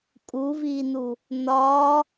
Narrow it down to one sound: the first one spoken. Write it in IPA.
kʼ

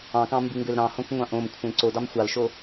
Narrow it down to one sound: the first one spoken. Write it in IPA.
ɑ̃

